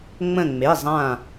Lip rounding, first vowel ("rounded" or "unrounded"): unrounded